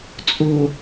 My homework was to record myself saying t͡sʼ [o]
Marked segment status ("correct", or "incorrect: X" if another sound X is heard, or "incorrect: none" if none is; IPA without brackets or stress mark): correct